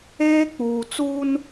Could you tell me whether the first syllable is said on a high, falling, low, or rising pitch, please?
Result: high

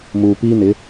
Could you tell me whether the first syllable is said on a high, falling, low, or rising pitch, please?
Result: low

